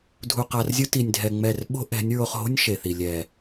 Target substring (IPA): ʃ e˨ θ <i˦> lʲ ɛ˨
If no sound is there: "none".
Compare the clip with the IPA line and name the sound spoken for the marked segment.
i˨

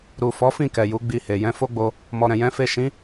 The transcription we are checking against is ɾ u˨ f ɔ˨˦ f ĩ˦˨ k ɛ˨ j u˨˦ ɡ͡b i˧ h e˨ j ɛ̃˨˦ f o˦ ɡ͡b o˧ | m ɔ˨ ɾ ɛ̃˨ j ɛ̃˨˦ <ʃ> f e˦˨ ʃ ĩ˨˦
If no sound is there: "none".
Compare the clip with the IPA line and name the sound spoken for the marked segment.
none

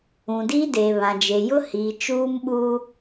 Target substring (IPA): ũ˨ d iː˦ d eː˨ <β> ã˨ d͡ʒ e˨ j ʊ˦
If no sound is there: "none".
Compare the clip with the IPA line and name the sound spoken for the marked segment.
β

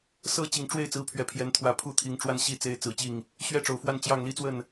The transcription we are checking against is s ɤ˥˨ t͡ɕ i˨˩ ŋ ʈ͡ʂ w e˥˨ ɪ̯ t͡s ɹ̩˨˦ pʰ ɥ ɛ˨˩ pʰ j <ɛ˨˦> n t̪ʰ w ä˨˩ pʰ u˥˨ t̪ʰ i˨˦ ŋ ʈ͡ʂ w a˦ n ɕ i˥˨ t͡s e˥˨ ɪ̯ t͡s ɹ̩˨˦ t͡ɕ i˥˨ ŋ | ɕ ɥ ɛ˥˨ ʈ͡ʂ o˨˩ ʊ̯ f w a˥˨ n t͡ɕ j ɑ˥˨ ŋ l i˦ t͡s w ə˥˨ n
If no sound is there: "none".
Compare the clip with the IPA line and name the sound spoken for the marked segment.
ɛ˨˦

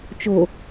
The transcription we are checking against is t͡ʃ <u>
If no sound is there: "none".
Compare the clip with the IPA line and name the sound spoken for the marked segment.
o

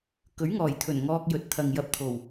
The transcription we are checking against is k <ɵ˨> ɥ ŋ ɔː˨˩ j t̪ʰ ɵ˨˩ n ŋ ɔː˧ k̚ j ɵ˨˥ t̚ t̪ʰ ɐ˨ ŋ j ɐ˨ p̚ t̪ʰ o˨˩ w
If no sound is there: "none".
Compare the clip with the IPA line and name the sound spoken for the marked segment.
ɵ˨˥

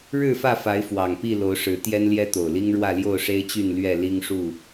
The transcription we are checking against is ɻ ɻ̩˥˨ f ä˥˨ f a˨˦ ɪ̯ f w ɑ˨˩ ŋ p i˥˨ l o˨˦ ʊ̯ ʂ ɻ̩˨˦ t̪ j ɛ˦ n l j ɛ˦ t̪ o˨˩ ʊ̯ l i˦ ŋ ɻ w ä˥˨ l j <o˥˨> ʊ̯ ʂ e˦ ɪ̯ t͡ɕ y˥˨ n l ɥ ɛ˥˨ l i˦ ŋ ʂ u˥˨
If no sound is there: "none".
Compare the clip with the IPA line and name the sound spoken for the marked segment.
o˥˨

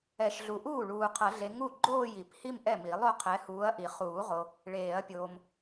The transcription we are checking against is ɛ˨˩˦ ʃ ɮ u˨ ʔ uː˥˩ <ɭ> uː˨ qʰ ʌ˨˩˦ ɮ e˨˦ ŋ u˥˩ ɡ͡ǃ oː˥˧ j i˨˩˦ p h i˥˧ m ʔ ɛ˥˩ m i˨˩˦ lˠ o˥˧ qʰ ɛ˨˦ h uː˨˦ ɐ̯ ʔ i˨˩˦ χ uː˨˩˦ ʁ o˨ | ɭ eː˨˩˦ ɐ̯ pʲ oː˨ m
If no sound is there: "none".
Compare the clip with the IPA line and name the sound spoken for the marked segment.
ɭ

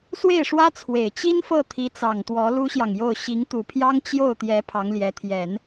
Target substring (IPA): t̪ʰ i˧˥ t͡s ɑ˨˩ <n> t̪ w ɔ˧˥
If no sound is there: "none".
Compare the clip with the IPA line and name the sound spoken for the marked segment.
ŋ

